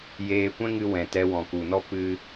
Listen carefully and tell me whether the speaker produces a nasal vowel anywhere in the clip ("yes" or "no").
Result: yes